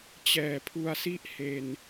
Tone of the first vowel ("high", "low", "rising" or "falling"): low